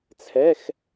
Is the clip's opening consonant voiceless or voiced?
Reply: voiceless